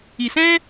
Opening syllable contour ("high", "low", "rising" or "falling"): low